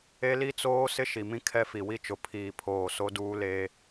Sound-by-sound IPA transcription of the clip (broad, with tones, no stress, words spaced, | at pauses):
e˦li˦t͡soː˦ sɪ˦ʃi˨mĩ˦ kʰɛ˦fi˨wi˦t͡ʃʊ˨ pʰiː˨pʰoː˨ so˦duː˦leː˦